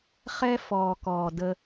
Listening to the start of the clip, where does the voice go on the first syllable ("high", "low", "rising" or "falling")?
high